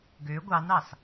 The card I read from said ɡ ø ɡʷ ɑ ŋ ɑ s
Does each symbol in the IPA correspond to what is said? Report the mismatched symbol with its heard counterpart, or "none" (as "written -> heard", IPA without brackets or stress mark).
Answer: ŋ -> n